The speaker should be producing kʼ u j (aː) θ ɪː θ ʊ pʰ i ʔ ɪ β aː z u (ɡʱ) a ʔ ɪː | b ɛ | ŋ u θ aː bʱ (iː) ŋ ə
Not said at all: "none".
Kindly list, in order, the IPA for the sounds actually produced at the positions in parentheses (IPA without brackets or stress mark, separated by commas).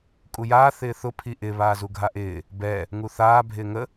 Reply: aː, ɡʱ, ɪː